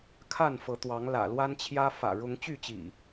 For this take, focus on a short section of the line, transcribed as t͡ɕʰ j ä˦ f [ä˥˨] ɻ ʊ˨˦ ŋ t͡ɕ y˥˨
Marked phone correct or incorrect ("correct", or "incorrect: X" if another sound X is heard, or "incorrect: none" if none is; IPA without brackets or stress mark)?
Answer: incorrect: ä̰˨˩